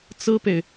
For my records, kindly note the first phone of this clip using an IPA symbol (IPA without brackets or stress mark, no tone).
t͡s